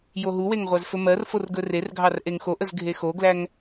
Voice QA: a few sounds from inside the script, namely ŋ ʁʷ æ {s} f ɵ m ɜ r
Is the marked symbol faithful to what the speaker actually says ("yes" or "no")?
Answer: no